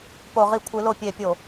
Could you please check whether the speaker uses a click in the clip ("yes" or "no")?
no